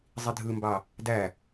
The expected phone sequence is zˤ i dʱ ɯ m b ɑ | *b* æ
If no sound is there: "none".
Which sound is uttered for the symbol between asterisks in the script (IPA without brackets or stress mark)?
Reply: d